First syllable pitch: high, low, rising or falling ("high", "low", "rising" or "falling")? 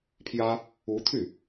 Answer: high